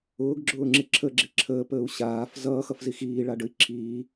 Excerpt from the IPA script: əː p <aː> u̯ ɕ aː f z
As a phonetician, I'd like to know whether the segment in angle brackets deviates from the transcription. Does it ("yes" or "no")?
yes